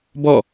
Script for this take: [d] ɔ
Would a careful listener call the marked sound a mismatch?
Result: yes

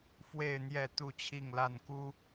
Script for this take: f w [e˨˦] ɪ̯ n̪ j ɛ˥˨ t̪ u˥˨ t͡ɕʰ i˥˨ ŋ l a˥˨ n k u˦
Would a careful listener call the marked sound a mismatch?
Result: yes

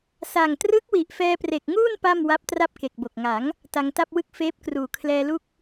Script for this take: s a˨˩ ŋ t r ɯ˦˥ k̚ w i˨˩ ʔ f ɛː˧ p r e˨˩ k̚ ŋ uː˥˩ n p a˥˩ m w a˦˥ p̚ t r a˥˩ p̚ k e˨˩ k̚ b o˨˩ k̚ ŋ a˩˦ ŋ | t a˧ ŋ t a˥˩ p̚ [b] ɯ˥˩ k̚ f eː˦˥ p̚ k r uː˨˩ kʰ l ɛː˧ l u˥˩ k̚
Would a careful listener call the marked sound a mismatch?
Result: yes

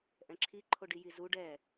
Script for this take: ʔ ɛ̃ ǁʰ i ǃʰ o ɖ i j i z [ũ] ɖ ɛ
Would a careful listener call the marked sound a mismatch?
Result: yes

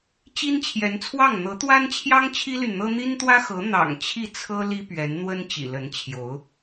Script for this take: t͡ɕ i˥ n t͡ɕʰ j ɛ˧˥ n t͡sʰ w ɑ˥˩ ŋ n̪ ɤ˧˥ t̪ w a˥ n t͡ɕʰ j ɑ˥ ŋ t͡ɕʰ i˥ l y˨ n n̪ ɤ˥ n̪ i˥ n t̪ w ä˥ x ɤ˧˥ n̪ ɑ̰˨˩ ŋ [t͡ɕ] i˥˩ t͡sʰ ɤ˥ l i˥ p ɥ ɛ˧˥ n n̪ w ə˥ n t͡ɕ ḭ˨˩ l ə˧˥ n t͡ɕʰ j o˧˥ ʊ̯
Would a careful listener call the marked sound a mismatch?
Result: yes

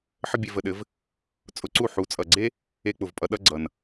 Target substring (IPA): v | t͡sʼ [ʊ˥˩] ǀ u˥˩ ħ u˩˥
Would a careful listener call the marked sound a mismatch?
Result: yes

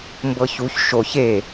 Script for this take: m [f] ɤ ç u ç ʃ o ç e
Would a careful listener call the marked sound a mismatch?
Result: yes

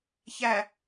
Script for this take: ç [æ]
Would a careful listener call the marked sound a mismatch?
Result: no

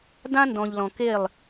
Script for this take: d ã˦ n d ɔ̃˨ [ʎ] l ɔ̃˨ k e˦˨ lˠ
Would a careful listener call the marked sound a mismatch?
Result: no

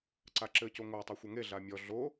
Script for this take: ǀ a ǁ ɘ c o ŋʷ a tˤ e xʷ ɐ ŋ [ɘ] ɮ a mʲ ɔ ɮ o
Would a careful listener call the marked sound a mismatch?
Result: yes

